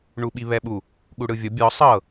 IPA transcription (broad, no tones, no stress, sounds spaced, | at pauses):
ɳ u ɓ i β ɛ ɓ u | ɠ u ɽ ɯ vʲ ɔ bʲ ɔ sˤ ɤ